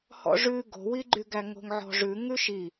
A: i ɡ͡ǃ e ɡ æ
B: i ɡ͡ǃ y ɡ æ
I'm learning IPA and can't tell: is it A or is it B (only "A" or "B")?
B